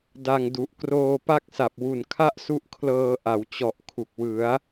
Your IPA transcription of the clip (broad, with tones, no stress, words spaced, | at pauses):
da˧ŋdu˨˩ʔ kroː˧pa˥˩k̚sa˨˩p̚ wu˨˩nkʰa˥˩ʔsu˦˥ʔkʰlɤː˧ ʔa˩˦w t͡ɕɔ˨˩ʔkʰu˨˩k̚wɯ˩˦a̯